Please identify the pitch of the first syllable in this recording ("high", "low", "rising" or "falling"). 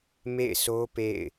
falling